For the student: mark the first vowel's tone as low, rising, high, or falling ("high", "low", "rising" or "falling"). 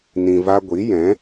low